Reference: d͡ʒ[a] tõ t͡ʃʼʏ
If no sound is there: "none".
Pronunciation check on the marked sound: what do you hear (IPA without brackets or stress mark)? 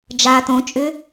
a